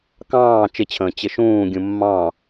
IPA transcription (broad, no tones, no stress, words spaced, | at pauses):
kɑ̃ː t͡ʃɪt͡ɕʰə̃ː t͡ɕɪʃũːɡʲũ mːɑ̃